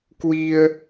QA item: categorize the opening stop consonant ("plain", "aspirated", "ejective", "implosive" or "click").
plain